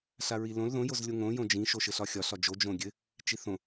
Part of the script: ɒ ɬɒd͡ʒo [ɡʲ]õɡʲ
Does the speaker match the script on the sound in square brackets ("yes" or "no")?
no